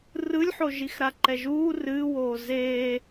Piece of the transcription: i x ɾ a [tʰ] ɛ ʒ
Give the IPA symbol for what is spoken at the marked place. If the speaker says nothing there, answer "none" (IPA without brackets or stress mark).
ǃ